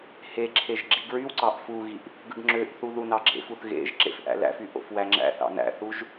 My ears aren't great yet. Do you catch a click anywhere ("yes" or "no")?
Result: yes